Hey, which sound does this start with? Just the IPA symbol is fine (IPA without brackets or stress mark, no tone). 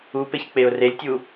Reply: u